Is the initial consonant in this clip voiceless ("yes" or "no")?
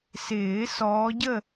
yes